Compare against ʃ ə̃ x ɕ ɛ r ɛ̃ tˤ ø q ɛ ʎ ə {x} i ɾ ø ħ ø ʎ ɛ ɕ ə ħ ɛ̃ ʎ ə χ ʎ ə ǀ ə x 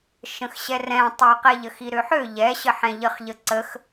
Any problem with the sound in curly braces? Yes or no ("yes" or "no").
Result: no